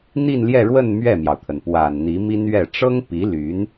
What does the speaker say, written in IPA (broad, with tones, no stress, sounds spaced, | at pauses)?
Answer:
n̪ i˥˧ n l j ɛ˥˧ ɻ w ə˥˧ n m ɥ ɛ˥˩ m j ɑ˩ ʊ̯ t̪ʰ ə˩ n p w a˨˩ n n̪ i˧˥ m i˥ n ɥ ɛ˥˩ ʈ͡ʂ ɤ˥ ŋ p i˧˥ l y˧˥ n